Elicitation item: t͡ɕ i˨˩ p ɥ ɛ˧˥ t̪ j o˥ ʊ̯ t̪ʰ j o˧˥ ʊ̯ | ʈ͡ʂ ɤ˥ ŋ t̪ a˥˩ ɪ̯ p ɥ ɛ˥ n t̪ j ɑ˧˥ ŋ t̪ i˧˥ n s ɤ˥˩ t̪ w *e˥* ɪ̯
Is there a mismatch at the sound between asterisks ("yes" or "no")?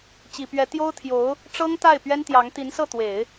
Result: yes